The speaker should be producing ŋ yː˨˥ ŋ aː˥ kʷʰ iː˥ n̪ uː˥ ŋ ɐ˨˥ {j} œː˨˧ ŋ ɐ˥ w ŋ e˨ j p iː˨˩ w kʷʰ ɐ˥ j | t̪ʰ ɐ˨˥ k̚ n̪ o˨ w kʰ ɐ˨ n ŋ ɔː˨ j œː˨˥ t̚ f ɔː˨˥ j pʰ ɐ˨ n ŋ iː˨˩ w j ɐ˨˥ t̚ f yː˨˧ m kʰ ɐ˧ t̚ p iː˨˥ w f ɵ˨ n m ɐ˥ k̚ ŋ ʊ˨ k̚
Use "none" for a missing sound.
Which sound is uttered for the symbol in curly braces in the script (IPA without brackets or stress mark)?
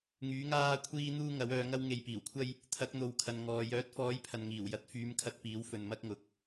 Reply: w